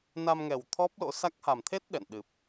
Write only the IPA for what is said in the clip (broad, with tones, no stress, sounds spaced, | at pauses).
n a˧ m ŋ ɛ˨˩ w t̪ʰ ɔ˦˥ p̚ l o̰˧˥ s a˦˥ k̚ h a˨˩ m t̪ʰ e˦˥ t̚ ɗ ɛ̰˧˨ n ɗ ɨ˨˩ p̚